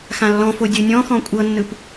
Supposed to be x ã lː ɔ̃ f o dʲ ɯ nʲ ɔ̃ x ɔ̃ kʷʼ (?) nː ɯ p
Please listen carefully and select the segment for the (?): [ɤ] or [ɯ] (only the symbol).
ɤ